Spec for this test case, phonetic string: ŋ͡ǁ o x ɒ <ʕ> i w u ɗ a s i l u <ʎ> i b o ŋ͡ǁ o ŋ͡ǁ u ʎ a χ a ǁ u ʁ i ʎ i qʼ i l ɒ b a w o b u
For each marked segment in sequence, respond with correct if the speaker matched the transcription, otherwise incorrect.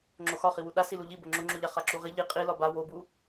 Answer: incorrect, correct

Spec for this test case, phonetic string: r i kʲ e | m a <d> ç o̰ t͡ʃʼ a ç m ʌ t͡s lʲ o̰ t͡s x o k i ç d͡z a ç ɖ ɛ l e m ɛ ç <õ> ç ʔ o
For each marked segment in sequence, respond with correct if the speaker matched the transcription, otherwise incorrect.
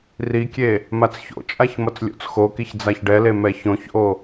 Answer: incorrect, correct

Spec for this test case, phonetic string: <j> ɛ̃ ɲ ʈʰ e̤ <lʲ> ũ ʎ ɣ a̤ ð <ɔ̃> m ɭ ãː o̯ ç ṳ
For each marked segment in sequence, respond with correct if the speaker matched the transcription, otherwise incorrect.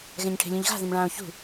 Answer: incorrect, correct, incorrect

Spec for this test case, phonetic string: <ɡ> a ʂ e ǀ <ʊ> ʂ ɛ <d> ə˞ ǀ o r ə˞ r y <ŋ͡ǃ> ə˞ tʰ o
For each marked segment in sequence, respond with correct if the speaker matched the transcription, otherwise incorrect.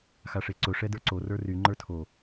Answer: incorrect, correct, correct, correct

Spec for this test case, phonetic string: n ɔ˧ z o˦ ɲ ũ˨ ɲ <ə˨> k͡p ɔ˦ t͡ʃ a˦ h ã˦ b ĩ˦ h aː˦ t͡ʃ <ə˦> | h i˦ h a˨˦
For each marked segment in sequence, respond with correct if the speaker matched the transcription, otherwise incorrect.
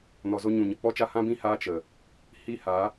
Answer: correct, incorrect

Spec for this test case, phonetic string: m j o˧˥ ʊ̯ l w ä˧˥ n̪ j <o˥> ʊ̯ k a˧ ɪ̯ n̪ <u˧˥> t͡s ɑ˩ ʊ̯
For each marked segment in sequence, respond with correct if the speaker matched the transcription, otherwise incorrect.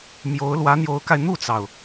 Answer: incorrect, incorrect

